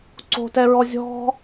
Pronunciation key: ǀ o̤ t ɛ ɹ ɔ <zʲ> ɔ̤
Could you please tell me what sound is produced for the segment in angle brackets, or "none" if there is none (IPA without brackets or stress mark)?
zʲ